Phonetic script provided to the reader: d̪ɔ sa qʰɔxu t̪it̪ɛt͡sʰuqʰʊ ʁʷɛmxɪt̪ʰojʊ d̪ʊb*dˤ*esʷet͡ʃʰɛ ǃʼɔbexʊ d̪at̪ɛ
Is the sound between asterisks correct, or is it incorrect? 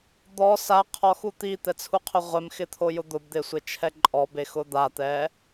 incorrect